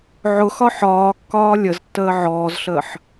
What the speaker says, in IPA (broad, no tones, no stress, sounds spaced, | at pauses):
ʕ ʊ x ɒ ħ ɒː kː ɒː lʲ ə z tː əː ʕ ɔː z ɬ əː ħ